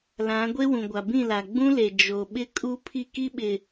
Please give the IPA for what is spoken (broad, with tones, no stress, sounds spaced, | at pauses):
l ã˨˦ ɡʷ e˦ w ũ˨ ɡʷ a˨ b ĩ˦˨ l a˨ ɡ͡b ũ˦ l e˨ d͡ʒ o˨ ɓ ɪ˦ kʼ u˦ pʰ i˦˨ k i˦ ɓ ɪ˨